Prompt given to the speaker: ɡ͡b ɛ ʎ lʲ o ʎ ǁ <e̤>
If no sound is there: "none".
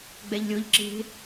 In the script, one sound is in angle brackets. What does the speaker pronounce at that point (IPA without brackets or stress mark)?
e̤